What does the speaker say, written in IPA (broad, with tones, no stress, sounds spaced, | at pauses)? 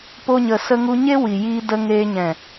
p o˧ ɲ ə˨ s ə˧ ŋ u˧ ɲ e˦ w i˨ j iː˧ d ə˧ ŋ e˧ ɲ ɛ̃˨